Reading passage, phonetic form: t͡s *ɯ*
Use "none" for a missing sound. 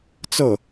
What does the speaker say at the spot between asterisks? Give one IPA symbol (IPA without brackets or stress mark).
ɤ